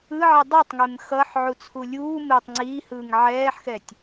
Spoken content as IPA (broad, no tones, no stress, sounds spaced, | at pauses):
ɯ ʕ i dˤ ɯ tˤ ŋ e m x ʌː ħ ʕ u t͡sʰ u lʲ uː m e tˤ ŋ͡ǀ iː h ɯː ŋ ʕ ɛː ħ x ɛ tʲ